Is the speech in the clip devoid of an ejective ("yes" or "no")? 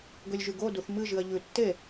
yes